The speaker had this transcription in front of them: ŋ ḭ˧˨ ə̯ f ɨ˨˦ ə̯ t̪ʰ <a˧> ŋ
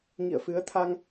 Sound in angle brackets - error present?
no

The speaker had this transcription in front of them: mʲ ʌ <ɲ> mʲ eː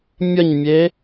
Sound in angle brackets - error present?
no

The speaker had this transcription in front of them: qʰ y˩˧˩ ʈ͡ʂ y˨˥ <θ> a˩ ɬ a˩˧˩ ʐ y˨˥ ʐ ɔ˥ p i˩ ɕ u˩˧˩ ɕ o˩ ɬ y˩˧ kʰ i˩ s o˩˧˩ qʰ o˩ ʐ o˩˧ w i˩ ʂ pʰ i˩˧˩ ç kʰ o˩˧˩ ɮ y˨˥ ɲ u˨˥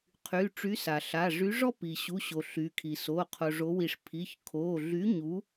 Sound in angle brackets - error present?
yes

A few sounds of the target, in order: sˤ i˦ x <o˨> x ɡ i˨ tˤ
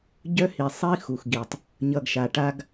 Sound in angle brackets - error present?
yes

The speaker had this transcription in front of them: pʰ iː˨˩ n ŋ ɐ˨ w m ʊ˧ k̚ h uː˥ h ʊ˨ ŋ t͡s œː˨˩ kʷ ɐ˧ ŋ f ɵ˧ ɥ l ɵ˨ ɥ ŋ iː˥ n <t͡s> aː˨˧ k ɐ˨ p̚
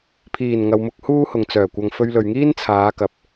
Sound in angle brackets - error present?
yes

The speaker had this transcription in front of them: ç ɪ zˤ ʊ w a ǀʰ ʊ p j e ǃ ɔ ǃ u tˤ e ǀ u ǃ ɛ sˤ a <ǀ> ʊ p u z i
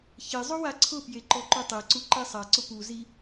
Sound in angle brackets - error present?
no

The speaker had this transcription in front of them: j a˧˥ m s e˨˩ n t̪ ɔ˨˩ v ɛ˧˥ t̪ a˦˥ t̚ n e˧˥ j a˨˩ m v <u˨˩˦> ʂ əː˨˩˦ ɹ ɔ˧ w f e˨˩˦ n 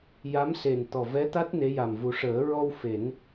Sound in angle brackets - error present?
no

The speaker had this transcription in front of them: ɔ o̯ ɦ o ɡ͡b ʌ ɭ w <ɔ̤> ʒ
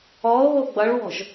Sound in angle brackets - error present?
no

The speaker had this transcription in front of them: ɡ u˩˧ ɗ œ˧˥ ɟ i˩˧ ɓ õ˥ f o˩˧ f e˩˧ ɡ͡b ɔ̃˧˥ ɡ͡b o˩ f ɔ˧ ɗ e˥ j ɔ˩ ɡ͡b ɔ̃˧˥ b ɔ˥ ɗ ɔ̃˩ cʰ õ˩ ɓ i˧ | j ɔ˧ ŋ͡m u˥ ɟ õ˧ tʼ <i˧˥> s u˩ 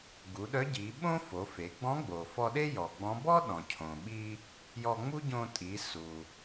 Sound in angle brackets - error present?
yes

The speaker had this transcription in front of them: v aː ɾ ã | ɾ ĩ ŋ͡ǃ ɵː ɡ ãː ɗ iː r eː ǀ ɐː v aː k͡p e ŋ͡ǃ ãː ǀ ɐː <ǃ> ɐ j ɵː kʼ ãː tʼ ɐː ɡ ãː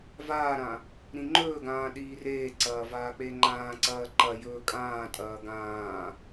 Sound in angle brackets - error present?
no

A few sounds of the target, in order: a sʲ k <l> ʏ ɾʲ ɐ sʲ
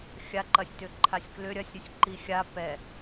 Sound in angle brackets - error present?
no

